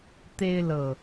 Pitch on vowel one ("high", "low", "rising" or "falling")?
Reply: high